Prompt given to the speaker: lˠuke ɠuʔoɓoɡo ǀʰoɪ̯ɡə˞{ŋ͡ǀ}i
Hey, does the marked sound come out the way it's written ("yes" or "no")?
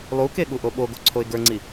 yes